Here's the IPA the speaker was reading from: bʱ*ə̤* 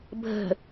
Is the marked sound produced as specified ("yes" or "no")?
yes